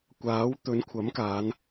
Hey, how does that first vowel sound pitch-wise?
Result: rising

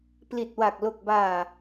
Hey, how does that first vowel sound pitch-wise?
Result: low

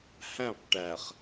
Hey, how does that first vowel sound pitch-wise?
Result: falling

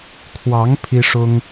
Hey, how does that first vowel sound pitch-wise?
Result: rising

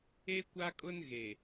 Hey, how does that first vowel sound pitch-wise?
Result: high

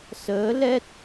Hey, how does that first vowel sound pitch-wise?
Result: rising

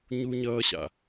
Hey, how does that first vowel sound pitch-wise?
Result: high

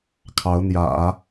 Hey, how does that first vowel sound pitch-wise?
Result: rising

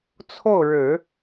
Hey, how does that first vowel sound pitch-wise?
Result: falling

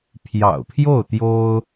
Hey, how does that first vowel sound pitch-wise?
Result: low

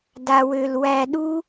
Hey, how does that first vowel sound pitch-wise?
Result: high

